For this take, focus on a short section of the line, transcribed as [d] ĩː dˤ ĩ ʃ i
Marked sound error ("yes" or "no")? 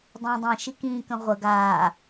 yes